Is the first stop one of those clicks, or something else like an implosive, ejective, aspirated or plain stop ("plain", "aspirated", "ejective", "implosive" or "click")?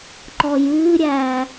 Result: click